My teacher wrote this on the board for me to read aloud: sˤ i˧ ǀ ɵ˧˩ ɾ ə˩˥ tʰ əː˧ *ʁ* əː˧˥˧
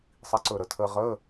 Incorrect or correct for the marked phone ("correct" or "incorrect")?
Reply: correct